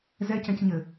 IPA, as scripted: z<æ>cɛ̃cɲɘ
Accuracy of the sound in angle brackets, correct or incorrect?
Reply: incorrect